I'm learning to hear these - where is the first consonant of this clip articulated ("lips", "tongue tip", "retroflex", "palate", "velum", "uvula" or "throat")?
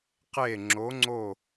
uvula